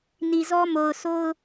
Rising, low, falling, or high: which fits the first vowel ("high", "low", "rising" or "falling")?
low